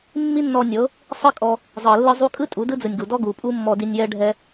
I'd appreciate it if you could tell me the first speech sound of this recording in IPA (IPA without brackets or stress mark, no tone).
mː